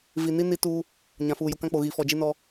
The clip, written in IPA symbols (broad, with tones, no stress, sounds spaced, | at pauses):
v i˨ n i˦ n i˦ t uː˦ | ɲ ã˨ f uː˨ j u˨ k ã˦ k͡p o˨ ɣ i˨ f ɔ˨ d͡ʒ i˦ n ɔ˦